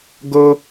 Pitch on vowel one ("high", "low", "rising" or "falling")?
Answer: high